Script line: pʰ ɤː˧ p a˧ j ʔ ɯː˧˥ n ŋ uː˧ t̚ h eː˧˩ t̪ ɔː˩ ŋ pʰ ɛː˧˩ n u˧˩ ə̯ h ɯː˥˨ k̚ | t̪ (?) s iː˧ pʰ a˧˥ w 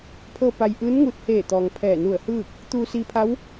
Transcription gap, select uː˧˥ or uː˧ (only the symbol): uː˧